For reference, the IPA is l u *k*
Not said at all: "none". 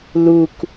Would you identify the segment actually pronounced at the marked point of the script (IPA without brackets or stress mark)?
k